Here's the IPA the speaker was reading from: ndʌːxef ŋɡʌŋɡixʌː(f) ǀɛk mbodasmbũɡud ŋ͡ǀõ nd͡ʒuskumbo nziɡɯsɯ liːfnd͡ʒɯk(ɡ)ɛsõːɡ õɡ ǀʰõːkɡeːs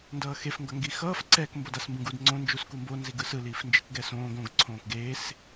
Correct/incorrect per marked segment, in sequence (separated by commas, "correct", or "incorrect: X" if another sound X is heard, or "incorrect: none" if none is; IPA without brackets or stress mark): correct, correct